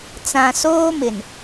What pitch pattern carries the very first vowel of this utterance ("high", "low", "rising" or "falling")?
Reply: low